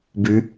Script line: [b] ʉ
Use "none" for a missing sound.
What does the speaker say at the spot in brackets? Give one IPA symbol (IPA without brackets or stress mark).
b